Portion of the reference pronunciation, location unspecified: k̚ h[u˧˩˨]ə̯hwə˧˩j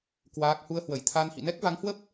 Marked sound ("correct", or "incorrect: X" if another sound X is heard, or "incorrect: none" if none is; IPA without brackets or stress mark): incorrect: u˧